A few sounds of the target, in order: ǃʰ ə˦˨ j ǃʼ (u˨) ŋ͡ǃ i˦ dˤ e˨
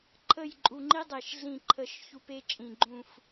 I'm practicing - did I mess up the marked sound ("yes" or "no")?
no